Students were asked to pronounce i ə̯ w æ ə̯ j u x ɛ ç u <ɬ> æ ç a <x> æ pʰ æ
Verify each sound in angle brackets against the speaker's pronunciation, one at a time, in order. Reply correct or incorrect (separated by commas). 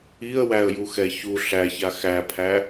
correct, correct